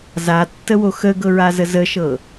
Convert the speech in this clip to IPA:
z a tː ə w o x ə ɡ ɤ ɹ a z ə z ə ʃ ɤ

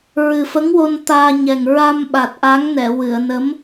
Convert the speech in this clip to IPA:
ɹ ɨ˨˩ f ə˧˥ ŋ w o˧ n t̪ aː˧ ɲ ɛ˨˩ ŋ ɹ a˧ m ɓ a˨˩ t̚ ʔ a˧˥ ŋ n ɛ˨˩˨ w ɨ˨˩˨ ə̯ n ə˧˥ m

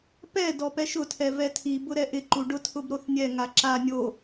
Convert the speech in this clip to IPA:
p ɛ d ɔ p ɛ ʃ ʊ tʰ ɛ v ɛ tʰ i b ʊ ɾ ɛ ʔ ɪ ǃ u ɖ ʊ tʰ ʊ b ɾ o θ nʲ ɛ ŋ a ǁ a nʲ o

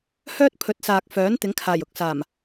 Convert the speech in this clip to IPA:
h œː˥ t̚ pʰ ɵ˨˥ t̚ s aː˨ k̚ f œː˨˥ n t̪ ɪ˨˥ ŋ kʰ aː˨˩ j ʊ˨˥ k̚ s aː˨˩ m

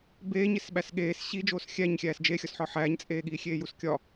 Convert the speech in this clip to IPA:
b eː ɲ e s ɓ æ s ɠ eː s ɕ i d͡ʒ oː s xʲ æ ɲ xʲ æː s d͡ʒ e xʲ ɒ s ħ ɒ ħ æː ɲ t͡sʼ eː ɠ iː xʲ eː j u s kʲ ɒ

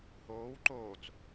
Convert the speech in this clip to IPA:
h oː w ǃ oː t͡s

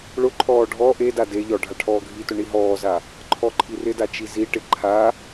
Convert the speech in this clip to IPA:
ɭ ʊ ǃʰ ɔː ɖʱ ɔ ʔ e d a d e ʎ ɔ ɖʱ a ʈʰ ɔː ɡʱ i t ʊ ɳ i ɦ ɔː z a | ǃʰ ɔ ǃʰ i r ɪ d a t͡ʃ i z i ʈ ɪ ǃʰ a

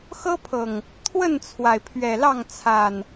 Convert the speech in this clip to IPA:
x ɤ˦ pʰ ɤ˨˩ ŋ | t̪ʰ w ə˥˨ n t͡sʰ w a˩ ɪ̯ pʰ ɥ ɛ˨˩ l ɑ˥˨ ŋ t͡sʰ a˨˩ n

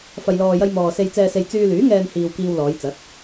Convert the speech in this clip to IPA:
f ɐ˨ j l ɔː˨ j ɐ˧ j m ɔː˨ s e˨ j t͡s ɛː˨ s e˨ j t͡s yː˧ l yː˨˥ ŋ ɛː˧ n h iː˨ w k iː˧ w l ɔː˨˧ j t͡s ɐ˨˥ t̚

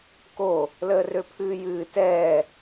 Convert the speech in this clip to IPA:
k o | l əː r ø pʰ ɨː j ɨː t ɛː

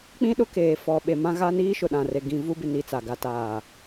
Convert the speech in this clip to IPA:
k͡p ĩ˦ ɗ ʊ˦ k eː˨ f ɔ˨ ɓ e˨ m ã˦ ɣ a˦ n iː˦ ʃ ʊ˨ ɗ ã˨ r e˨ ɡ ĩ˨ v u˦ b ɪ˨ n i˨ t͡s a˨ ɡ a˦ t aː˦˨

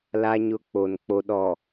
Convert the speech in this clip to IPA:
l a˦ ɲ ʊ˦ k͡p o˨ n k͡p o˦ ɗ ɔ˨

